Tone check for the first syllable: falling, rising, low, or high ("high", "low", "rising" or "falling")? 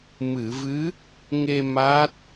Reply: low